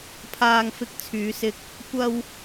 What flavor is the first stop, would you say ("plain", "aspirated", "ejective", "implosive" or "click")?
aspirated